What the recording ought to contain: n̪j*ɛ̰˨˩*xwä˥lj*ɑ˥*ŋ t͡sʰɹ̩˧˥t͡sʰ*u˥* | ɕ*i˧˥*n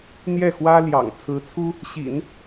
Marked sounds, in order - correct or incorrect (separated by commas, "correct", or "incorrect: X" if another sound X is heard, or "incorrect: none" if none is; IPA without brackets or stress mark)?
incorrect: ɛ˥˩, incorrect: ɑ̰˨˩, correct, incorrect: ḭ˨˩˦